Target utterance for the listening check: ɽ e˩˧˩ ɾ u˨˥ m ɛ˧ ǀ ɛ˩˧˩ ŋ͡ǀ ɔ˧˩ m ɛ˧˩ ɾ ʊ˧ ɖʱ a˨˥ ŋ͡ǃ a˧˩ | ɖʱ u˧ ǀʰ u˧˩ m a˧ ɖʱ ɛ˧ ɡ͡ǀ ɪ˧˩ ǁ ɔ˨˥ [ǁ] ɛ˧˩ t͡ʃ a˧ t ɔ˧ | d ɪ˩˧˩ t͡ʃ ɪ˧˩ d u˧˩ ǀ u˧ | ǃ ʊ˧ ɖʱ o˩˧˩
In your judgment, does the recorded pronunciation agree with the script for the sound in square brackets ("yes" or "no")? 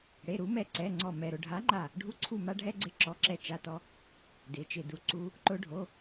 yes